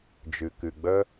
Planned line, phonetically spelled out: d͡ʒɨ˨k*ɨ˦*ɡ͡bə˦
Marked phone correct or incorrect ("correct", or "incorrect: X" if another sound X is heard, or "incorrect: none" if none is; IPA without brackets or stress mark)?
incorrect: ɨ˨